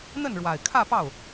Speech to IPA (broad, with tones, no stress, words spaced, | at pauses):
n̪ə˥˩nɻwa˨˩ɪ̯kʰä˥˧pɑ˥˩ʊ̯